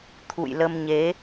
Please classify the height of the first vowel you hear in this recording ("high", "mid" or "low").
high